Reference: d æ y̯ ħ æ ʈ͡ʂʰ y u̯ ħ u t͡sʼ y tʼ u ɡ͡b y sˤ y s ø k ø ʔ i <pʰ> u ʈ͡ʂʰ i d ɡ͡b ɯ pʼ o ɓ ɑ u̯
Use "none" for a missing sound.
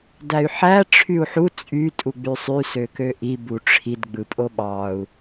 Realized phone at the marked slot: b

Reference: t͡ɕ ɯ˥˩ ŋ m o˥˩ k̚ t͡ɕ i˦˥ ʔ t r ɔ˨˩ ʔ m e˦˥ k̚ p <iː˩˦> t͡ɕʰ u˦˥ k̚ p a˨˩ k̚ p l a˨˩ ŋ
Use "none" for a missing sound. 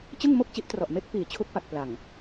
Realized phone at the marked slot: iː˨˩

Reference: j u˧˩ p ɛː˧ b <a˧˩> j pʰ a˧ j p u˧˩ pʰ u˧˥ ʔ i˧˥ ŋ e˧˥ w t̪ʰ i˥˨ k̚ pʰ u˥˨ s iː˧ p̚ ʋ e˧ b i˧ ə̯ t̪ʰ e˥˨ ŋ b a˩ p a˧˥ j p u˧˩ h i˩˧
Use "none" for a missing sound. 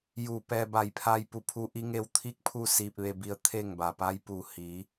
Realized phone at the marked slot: a˧˩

